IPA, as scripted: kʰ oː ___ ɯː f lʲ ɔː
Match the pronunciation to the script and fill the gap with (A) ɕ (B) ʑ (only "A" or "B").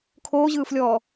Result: B